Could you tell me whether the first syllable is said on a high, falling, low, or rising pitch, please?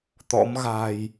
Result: rising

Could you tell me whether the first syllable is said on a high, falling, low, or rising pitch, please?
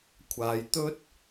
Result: low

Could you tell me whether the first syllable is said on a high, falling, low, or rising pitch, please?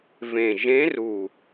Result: low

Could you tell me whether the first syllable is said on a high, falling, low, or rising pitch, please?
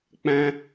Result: high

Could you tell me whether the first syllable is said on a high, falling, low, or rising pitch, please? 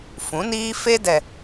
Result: rising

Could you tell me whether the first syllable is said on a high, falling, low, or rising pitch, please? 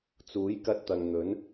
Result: rising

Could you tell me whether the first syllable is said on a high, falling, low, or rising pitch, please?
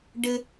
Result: high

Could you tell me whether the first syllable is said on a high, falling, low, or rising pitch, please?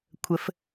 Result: rising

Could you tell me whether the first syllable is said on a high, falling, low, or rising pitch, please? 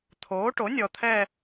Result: rising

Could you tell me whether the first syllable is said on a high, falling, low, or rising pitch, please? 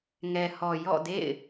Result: low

